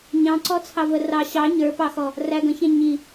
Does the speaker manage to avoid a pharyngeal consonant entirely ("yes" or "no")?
yes